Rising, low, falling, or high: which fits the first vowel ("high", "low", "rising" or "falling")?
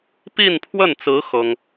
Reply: falling